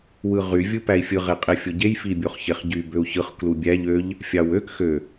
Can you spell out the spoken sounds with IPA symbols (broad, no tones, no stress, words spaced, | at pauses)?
wɯʁy vʲɯpæi̯fʲɯ ʁeqʼefʲoɟej fibʲoχçeχɟy bøu̯çɯχ klubʲæʎ øʎ | fʲɑwøk xø